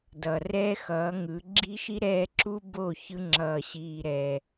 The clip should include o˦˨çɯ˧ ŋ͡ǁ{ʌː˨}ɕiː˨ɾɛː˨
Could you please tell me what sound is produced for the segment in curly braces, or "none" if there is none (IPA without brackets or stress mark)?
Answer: ʌː˨